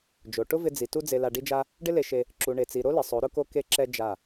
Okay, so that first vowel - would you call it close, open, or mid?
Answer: mid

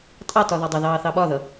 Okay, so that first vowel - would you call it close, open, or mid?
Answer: open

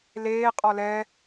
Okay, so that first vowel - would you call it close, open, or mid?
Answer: mid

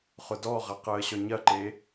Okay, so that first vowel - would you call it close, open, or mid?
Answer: close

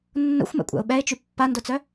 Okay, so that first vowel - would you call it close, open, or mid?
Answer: mid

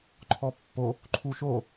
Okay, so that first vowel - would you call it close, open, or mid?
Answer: mid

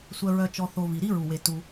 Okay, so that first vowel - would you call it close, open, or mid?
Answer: mid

